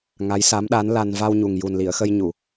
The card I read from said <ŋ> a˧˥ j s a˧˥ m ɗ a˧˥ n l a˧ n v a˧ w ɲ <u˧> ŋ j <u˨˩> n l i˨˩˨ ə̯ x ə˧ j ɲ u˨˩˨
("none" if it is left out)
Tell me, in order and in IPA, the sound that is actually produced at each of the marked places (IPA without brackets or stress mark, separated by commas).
ŋ, u˨˩, u˨˩